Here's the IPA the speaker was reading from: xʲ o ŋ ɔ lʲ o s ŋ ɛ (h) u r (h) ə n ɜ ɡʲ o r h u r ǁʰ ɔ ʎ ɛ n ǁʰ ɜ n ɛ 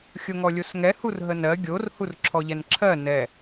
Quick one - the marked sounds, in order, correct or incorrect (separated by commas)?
correct, incorrect